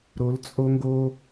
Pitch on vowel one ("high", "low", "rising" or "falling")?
rising